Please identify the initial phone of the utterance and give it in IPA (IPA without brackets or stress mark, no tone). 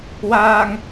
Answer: w